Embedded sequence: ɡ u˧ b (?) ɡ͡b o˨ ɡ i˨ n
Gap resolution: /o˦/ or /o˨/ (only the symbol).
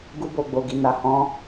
o˨